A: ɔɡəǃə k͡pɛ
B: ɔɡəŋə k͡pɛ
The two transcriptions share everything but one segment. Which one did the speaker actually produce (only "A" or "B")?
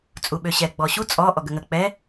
B